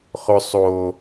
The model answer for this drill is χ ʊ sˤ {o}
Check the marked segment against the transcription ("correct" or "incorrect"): correct